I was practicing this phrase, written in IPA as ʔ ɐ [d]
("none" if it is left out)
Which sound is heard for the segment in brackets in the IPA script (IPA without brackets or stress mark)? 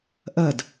d